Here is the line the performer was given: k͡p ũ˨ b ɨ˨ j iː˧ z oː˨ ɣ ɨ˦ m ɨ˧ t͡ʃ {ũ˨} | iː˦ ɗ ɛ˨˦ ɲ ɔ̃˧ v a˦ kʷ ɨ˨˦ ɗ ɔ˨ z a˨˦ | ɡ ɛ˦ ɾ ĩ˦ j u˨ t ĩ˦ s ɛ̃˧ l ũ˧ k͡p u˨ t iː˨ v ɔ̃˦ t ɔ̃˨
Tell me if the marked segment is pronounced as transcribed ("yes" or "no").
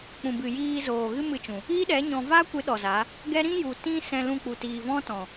yes